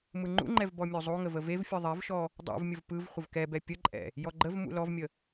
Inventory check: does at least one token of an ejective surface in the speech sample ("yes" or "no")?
yes